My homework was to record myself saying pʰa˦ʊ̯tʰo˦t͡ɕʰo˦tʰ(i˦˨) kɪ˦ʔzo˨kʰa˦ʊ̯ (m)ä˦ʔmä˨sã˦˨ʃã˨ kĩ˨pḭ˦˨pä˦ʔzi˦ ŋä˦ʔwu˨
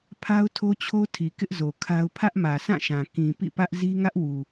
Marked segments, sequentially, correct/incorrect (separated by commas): incorrect, incorrect